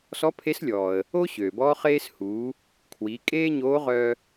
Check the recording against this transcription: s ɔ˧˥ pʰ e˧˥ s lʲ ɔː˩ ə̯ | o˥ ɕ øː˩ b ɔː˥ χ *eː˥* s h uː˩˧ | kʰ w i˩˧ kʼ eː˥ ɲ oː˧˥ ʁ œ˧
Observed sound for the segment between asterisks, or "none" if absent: eː˥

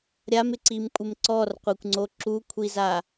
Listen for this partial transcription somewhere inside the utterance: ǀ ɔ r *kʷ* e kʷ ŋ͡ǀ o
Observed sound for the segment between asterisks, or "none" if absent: qʷ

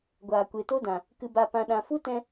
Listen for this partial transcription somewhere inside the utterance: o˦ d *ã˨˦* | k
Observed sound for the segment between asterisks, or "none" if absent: ã˨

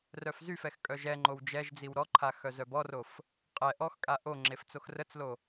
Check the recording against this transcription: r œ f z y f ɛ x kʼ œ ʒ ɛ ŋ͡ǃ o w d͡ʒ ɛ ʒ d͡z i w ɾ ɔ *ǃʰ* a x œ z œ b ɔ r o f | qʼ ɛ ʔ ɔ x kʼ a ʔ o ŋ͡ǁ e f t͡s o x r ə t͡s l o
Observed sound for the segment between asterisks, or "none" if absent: ǃʰ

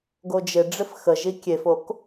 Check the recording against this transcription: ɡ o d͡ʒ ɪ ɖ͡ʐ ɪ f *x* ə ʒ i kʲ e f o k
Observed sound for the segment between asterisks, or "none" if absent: x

